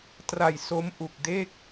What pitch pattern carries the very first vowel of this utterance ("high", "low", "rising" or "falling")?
low